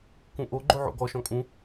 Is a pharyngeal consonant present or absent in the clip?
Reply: present